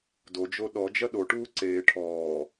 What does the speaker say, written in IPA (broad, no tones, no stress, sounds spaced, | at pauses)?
d o d͡ʒ o ɗ ɔ d͡ʒ ɐ ɗ o ʈ uː ǀ eː ʈʰ ɔː